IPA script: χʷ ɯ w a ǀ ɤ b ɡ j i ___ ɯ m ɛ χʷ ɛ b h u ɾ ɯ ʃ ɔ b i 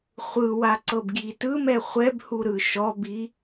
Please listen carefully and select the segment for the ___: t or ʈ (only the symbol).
t